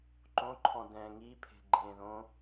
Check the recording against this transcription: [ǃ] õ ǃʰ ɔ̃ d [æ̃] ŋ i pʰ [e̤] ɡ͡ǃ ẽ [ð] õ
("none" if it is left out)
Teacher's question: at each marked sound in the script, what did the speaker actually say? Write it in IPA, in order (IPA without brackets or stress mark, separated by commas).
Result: ǃ, ɛ̃, e̤, ð